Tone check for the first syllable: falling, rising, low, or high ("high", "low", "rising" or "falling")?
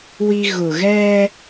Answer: high